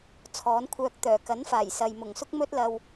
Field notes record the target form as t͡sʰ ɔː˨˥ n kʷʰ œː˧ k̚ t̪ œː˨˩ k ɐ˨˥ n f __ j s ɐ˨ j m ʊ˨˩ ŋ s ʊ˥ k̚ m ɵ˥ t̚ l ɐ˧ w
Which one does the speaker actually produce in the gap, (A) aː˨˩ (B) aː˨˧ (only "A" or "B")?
A